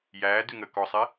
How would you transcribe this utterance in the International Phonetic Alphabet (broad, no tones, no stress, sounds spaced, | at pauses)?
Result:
j æː d ʉ ŋ əː k ɔ sˤ i